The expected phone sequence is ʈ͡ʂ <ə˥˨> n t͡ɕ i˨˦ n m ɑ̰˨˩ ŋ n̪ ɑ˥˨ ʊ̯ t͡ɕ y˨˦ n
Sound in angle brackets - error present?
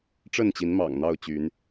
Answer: no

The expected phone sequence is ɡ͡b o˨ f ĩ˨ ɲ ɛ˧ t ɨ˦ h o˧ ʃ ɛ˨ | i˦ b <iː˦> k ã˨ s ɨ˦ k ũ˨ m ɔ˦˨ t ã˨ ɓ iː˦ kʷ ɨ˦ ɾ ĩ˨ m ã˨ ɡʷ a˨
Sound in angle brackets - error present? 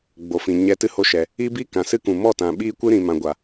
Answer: no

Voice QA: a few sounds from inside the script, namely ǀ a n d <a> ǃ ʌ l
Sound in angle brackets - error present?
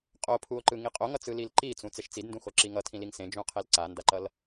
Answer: no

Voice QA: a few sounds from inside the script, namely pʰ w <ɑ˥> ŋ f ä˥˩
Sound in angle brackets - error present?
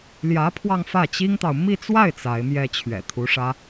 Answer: yes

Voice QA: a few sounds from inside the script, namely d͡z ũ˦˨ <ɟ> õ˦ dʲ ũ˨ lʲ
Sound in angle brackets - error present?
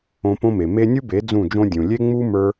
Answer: yes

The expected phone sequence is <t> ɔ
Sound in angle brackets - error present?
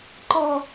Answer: yes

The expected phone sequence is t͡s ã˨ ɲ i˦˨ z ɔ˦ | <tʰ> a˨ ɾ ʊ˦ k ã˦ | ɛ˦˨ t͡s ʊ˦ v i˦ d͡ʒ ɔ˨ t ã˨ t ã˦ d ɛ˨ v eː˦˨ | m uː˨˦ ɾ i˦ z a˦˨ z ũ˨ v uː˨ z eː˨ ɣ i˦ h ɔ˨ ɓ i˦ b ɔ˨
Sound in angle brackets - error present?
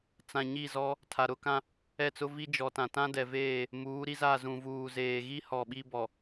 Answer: no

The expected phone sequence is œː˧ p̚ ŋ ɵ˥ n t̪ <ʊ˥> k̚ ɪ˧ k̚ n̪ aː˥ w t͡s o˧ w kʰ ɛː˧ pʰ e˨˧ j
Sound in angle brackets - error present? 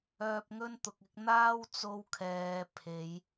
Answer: yes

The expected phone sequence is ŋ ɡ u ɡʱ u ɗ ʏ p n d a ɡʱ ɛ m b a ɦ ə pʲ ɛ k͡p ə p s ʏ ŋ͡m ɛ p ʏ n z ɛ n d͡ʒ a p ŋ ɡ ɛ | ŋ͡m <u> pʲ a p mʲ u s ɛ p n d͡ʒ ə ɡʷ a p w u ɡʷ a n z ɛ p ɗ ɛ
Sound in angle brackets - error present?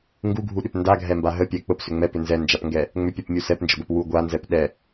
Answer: yes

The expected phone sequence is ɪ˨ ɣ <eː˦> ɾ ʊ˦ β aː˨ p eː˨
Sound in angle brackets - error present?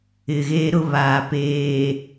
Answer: no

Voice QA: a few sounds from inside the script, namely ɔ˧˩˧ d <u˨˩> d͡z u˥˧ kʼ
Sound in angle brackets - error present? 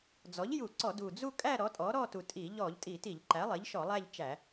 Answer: no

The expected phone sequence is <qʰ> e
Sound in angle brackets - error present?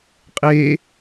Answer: yes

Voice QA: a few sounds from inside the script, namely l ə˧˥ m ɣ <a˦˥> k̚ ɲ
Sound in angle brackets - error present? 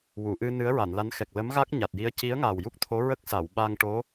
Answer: no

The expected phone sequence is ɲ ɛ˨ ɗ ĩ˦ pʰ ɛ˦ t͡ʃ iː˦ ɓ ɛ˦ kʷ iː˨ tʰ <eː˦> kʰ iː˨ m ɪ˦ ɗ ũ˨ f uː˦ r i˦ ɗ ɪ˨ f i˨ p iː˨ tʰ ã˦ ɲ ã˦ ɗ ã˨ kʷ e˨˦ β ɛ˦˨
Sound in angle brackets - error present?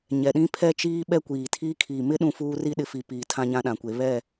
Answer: yes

